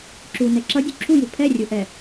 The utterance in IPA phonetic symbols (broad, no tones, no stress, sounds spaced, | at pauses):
ǁ u n ɛ ǁ ʌ dʲ u ǁʰ u j u pʰ ɛ rʲ u ʔ ɛ